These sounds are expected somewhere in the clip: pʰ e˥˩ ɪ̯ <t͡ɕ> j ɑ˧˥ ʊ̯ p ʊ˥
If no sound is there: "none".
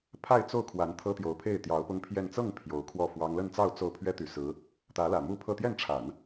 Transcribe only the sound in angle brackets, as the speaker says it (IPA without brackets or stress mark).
t̪